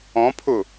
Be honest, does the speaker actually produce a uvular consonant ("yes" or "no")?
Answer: no